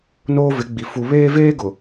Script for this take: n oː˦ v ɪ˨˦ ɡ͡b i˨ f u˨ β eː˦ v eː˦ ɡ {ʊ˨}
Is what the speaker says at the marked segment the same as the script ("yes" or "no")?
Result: yes